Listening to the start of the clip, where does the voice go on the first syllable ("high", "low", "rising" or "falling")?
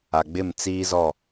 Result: low